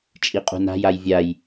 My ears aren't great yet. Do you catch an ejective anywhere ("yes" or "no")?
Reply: yes